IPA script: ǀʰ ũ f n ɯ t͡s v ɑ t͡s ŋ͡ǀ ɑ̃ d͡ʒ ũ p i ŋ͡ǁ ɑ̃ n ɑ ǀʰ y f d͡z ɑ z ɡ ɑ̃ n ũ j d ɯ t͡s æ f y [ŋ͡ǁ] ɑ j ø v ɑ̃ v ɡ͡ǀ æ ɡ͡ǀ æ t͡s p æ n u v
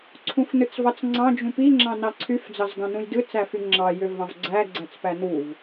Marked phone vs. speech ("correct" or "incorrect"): correct